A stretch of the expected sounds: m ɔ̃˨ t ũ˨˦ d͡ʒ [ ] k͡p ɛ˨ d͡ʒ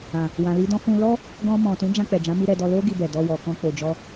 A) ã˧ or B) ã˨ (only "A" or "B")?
A